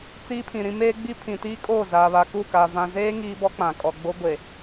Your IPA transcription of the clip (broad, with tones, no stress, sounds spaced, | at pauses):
t͡s iː˦ pʰ ĩ˨ ɾ ĩ˦ m eː˦ ɡ͡b i˦ pʰ ĩ˨ t iː˦ kʼ oː˦˨ z aː˨ β a˨ k u˦˨ k a˨ v ã˨ z eː˦ ŋ iː˦ b ɔ˦ k͡p ã˨ kʼ ɔ˨ ɡ͡b o˦ ɡʷ e˨